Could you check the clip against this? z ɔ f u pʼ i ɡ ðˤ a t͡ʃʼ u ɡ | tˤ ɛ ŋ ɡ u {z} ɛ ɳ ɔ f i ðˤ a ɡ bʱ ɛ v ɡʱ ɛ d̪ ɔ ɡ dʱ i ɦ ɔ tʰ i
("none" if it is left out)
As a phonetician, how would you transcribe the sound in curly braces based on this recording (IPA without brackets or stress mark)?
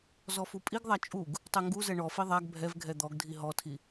z